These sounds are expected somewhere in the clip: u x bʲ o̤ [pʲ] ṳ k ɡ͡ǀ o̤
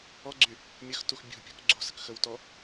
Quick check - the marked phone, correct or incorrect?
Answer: correct